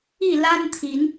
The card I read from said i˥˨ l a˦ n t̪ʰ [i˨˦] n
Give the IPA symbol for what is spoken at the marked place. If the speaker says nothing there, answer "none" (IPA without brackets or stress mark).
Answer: i˨˦